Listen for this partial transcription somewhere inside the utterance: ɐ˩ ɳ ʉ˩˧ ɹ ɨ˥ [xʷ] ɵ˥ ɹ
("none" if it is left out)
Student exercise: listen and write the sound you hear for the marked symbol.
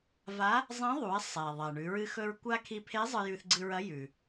x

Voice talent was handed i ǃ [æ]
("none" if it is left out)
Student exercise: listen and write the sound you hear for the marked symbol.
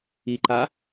a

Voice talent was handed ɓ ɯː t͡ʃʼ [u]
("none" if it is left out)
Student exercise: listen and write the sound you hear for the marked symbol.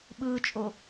o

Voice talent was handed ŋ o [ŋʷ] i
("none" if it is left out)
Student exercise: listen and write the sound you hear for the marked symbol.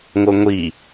ŋʷ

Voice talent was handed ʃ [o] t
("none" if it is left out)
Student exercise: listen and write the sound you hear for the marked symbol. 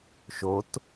o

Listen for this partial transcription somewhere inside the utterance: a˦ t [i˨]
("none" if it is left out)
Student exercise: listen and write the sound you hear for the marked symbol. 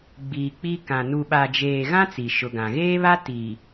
i˨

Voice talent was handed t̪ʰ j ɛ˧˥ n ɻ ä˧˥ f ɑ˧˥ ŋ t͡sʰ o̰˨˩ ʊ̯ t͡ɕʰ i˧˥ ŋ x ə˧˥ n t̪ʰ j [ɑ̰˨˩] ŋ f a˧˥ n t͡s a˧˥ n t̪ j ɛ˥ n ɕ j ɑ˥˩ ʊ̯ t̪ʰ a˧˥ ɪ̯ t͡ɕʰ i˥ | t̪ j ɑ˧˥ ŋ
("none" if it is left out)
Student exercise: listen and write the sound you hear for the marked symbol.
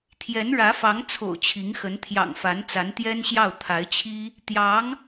ɑ̰˨˩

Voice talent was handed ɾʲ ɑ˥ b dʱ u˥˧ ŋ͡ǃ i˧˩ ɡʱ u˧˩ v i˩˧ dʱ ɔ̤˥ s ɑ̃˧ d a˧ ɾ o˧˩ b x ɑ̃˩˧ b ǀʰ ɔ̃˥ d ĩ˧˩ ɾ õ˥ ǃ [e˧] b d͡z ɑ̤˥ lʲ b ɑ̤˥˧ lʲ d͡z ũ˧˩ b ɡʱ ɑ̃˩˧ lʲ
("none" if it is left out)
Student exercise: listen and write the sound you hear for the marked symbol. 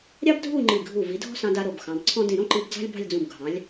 i˧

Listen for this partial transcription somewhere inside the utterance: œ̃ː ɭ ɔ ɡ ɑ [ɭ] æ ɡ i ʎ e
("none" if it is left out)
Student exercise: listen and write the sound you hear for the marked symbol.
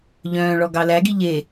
l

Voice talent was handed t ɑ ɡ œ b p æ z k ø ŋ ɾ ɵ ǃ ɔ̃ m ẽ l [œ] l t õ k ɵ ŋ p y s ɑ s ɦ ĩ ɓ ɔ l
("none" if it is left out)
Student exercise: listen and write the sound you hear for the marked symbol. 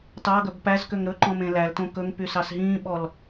æ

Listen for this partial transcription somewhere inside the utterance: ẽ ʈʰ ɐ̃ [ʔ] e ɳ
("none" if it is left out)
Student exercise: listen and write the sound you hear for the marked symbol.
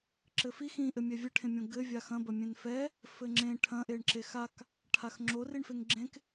ʔ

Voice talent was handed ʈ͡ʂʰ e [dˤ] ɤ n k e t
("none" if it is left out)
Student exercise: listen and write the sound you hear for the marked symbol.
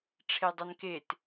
dˤ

